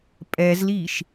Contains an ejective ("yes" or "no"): yes